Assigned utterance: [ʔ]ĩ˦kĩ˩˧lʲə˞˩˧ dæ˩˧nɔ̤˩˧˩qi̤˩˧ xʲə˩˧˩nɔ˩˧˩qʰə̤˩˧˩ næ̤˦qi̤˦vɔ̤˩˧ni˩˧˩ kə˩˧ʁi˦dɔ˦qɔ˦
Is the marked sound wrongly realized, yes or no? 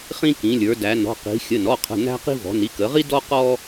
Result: yes